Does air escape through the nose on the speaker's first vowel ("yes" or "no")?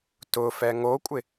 no